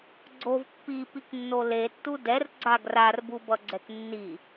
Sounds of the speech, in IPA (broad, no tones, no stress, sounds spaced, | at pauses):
ɡ͡ǀ o v pː i p i k nː o l e tː u d ɛ r ɡ͡ǀ a ɡ r a r b u b ʌ ɡ͡ǀ ɛ k nː i